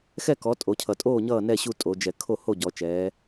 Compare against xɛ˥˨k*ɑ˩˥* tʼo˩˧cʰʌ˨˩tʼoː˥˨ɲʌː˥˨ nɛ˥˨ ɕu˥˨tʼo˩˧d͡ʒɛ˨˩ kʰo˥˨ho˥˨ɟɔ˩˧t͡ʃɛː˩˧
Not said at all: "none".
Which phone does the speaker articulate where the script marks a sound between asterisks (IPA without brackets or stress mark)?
ɔ˩˥